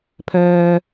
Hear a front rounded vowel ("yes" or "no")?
yes